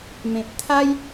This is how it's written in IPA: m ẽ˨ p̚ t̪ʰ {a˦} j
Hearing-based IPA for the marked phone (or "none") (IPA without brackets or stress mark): a˦